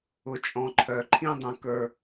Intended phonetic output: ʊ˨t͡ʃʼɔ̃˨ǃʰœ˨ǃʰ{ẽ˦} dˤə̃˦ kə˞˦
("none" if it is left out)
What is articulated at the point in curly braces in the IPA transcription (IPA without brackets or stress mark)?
ĩ˦